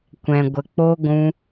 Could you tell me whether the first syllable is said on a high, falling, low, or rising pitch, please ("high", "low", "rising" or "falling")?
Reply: low